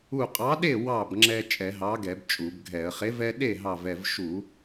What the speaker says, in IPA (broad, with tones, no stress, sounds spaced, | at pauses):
u˧˩ qʼ ɑ˨˥ ɗ e˥˩ w ɑ˥˩ b ŋ͡ǁ ɛ˦ t͡ʃʼ ɛ˧˩˧ ɦ ɑ˨˥ ɡ ɛ˧˩˧ b t͡ʃʼ u˧˩˧ b ɡʱ ɛ˧˩˧ ə̯ χ e˨˥ v ɛ˦ ɗ e˥˩ ɦ ɑ˧˩ v ɛ˧˩ v ʃ u˧˩˧